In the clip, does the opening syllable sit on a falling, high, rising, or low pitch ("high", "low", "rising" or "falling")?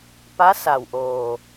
rising